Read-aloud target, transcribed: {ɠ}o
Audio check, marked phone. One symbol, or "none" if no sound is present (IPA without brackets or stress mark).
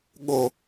ɠ